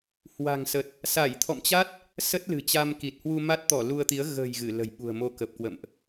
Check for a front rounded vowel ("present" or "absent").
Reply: absent